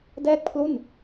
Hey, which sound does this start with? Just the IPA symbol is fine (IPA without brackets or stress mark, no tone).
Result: d